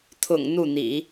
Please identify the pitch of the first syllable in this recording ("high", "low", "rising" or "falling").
low